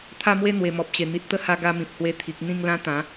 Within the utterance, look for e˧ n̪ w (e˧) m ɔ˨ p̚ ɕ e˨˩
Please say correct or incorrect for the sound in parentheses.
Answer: incorrect